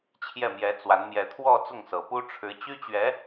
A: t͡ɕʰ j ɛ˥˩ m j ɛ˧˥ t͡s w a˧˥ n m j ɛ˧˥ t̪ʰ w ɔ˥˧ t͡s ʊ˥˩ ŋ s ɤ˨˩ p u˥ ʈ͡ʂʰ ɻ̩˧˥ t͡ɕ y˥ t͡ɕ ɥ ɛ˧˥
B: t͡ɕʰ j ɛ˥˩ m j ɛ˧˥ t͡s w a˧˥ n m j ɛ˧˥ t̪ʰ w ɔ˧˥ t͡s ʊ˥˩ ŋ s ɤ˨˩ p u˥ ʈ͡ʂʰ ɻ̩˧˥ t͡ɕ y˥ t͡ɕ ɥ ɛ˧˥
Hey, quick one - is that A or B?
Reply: A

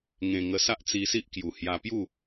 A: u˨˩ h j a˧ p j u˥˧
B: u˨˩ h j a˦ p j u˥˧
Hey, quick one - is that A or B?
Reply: A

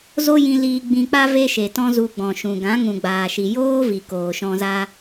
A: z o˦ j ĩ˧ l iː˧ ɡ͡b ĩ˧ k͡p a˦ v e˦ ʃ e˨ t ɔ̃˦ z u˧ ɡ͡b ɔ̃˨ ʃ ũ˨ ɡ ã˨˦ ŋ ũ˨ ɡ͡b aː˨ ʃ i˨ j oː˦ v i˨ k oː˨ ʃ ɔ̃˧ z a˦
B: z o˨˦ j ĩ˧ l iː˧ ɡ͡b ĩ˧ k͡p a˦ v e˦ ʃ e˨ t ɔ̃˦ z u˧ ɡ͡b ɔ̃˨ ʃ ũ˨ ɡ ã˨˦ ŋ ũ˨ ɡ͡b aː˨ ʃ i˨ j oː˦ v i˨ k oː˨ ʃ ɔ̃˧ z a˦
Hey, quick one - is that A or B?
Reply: A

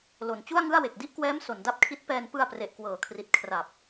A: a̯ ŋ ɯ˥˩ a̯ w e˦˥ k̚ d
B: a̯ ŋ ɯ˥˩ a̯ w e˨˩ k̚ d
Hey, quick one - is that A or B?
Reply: B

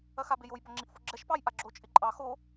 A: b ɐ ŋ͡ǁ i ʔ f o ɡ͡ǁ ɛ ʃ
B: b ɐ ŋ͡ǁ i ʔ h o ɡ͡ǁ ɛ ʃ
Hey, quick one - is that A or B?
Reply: A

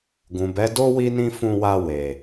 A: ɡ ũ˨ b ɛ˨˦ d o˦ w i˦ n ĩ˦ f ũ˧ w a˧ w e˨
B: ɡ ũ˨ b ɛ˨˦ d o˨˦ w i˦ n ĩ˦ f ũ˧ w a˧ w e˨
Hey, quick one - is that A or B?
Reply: A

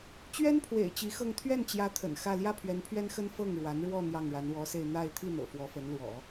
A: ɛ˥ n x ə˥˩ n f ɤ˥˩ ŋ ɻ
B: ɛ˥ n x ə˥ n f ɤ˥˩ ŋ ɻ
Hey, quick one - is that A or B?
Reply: B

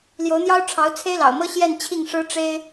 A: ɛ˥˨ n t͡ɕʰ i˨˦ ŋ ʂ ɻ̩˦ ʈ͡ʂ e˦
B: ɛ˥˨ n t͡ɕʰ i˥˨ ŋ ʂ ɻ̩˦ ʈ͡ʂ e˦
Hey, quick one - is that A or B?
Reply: B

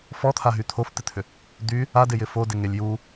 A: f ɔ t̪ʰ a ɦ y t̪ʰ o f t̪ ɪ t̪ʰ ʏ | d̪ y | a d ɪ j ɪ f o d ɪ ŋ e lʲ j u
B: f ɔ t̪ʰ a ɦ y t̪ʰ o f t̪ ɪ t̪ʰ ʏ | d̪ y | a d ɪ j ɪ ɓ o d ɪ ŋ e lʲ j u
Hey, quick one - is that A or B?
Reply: A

